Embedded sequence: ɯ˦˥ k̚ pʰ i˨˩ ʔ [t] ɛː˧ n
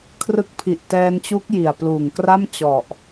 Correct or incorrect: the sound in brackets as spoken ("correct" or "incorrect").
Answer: correct